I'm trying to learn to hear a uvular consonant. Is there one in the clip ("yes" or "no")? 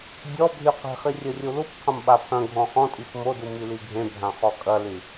yes